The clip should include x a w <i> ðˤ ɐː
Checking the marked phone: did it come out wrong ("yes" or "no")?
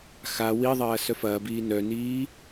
no